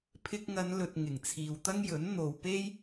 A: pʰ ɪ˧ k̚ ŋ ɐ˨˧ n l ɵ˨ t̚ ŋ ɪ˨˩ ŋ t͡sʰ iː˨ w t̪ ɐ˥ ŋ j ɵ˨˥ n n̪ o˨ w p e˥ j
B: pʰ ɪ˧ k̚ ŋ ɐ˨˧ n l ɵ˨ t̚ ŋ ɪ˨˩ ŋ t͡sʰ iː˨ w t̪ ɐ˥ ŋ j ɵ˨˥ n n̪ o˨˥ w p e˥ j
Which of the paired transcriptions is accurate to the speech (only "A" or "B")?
A